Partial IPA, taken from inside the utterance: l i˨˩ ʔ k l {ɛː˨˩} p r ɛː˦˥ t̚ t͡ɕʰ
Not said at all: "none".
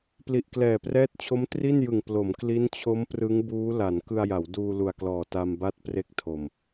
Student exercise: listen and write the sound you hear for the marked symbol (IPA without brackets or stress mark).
ɛː˨˩